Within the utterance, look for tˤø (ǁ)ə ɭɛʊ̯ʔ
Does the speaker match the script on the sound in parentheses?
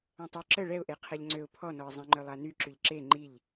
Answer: yes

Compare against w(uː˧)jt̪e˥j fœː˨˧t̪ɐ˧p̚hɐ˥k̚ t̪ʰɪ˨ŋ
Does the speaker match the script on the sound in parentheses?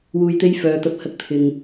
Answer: yes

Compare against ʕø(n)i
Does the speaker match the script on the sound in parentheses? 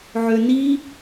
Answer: yes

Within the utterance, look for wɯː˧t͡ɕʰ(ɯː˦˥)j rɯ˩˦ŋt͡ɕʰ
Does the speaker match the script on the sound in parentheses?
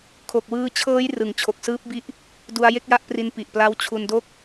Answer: no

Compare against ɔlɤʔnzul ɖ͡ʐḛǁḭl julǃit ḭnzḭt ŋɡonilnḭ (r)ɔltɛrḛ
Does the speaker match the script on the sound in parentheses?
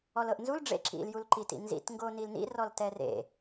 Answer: yes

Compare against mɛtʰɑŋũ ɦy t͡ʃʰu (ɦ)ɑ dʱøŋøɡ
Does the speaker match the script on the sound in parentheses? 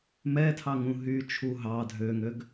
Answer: yes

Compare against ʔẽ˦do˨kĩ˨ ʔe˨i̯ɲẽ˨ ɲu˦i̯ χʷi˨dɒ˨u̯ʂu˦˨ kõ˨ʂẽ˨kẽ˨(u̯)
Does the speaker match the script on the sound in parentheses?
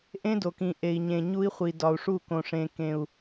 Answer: yes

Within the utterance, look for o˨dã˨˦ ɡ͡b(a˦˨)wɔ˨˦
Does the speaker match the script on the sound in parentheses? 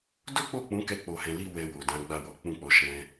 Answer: yes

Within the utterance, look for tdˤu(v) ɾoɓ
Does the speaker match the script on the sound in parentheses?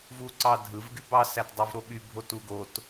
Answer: yes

